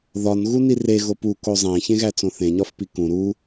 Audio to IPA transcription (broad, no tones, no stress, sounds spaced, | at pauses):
ð ɒ n ɣ u n i r e ɣ o p u k o zˤ æ̃ ç ẽ ɣ æ t͡s õ θ ẽ ɲ ɒ f p i k ũ ɾ u